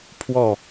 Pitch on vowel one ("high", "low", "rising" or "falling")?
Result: falling